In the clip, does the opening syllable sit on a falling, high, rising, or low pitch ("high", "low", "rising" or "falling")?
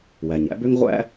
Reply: low